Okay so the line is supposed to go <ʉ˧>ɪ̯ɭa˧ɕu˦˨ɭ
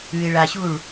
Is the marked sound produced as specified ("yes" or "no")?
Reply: yes